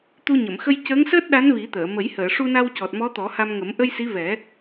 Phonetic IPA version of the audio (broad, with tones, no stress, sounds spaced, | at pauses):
t̪ u˧ ɲ ə˨˩˨ m x ə˧ j c əː˧˥ ŋ s əː˦˥ t̚ ɗ a˧˥ n v i˨˩˦ t̪ əː˨˩˨ m ə˨˩˦ j h əː˨˩˨ ʂ u˧ n a˧ w c ɔ˨˩ t̚ m ɔ˧˥ t̪ ɔ˨˩˦ h a˧ m ŋ ə˨˩˦ m ʔ ə˧ j s i˧˥ v ɛ˨˩˦